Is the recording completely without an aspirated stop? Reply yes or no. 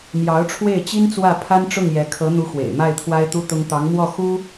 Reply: no